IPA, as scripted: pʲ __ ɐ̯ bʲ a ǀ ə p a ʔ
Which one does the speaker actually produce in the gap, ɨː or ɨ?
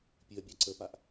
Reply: ɨ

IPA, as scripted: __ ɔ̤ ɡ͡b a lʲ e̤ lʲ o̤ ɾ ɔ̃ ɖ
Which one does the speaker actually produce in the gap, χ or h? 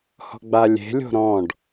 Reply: h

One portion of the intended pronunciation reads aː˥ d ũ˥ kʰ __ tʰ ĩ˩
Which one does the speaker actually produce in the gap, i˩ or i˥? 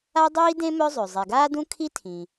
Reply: i˥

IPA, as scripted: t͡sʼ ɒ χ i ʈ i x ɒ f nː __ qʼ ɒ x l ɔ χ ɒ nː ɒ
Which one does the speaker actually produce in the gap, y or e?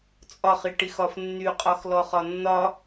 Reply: y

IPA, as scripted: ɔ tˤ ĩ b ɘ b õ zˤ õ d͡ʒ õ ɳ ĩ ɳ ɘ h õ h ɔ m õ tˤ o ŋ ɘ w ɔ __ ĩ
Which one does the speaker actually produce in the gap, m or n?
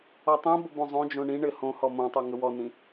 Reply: n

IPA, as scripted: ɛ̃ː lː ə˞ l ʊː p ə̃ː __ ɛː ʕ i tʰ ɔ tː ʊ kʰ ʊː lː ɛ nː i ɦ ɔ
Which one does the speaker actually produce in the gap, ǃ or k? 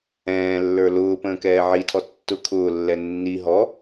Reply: k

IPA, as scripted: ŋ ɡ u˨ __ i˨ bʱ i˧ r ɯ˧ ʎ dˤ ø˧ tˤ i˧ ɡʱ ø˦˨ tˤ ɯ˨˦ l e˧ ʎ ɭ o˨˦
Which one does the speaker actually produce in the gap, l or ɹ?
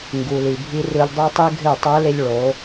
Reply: l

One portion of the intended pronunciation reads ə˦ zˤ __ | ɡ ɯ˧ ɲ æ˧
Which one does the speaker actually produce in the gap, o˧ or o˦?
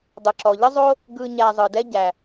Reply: o˦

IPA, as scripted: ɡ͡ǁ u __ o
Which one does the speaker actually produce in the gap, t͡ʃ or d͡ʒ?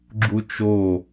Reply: t͡ʃ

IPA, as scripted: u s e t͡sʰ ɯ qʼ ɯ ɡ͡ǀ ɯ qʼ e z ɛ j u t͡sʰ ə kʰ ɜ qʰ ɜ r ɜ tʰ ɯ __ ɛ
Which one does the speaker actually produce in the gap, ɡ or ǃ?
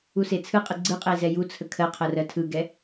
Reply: ɡ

